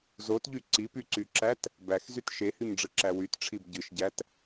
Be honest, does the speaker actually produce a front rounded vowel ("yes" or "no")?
yes